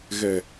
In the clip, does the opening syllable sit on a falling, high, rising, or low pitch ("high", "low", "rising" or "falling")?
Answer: low